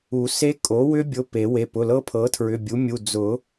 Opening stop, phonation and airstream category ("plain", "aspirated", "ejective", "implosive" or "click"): ejective